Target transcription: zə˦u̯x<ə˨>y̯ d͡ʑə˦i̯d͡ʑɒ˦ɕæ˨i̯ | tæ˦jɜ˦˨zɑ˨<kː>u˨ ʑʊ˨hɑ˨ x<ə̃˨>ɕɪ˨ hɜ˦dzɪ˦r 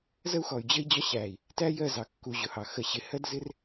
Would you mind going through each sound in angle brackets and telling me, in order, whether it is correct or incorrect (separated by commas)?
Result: incorrect, correct, incorrect